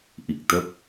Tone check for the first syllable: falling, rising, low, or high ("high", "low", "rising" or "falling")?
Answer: low